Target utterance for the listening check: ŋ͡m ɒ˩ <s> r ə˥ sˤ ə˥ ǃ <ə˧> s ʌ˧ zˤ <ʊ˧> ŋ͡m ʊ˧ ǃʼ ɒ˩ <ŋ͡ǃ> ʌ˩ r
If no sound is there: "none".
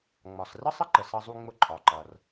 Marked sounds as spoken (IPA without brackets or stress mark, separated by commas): s, ə˩, u˧, ǃ